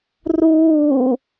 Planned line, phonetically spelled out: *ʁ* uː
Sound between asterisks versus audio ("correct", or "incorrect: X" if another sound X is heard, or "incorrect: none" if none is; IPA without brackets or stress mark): incorrect: r